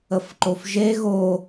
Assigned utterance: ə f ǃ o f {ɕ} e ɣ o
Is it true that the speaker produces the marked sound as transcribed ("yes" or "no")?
no